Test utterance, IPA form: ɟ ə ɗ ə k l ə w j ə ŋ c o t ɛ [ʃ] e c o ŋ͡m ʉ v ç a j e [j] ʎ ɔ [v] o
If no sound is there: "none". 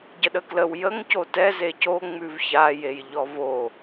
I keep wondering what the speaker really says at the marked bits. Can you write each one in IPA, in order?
z, j, v

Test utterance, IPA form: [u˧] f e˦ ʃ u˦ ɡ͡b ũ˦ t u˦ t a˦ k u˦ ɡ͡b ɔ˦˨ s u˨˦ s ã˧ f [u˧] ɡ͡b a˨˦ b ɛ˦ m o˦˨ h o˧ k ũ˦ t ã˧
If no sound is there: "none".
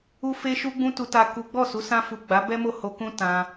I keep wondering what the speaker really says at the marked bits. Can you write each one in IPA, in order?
u˦, u˨

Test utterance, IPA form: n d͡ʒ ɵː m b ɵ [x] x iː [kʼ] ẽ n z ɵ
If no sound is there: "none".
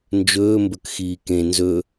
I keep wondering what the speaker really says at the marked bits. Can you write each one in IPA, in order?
k, k

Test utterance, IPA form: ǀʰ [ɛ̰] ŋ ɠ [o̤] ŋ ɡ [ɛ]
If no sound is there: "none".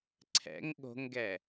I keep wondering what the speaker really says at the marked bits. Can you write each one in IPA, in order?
ɛ̰, o̤, ɛ

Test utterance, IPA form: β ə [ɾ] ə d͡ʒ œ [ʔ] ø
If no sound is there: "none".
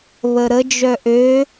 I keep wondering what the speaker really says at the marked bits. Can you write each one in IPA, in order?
ɾ, ʔ

